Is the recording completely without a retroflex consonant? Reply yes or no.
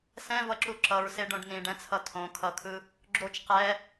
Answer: no